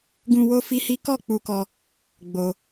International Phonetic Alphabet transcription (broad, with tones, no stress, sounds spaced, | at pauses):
ɡ ũ˧ w o˦ f i˦ h i˦ k ɔ˦˨ k͡p u˧ k ɔ˧ | ɡ͡b o˧